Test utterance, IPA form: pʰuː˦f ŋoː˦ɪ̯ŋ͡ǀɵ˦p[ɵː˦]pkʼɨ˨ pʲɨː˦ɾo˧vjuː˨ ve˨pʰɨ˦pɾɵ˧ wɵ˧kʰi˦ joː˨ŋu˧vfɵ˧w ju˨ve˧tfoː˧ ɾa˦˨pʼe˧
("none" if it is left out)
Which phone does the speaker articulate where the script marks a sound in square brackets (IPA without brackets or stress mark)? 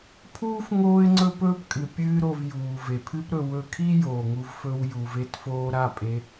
ɵː˦